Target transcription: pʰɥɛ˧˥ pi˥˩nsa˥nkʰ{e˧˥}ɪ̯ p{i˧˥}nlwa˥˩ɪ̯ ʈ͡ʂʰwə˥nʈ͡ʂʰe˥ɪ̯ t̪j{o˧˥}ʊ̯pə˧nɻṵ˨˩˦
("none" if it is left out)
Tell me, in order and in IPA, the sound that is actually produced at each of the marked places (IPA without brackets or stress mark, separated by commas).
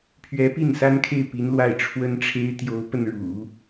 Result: e˥˩, i˧˥, o˧˥